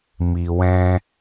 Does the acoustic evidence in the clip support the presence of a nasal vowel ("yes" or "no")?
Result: yes